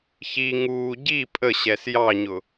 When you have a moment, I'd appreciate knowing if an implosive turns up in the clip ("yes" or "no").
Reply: no